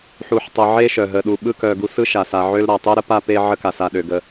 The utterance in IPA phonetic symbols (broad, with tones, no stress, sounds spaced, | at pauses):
ħ u˨ ħ tˤ ə˨ ʕ e˦ ʃ œ˩ ɦ ə˨ ɗ u˨ ɓ ɯ˥ k œ˨ ɡ u˦ s ɯ˥ ʃ a˩ s a˨ ʕ ø˦ l ɾ a˩ tˤ e˥ ɾ ə˥ p a˥ p e˦ ʕ ə˦ k a˩ s a˨ ɗ ø˩ ɡ ə˨